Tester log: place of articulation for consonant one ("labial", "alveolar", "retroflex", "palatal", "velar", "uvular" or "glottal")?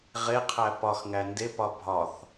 uvular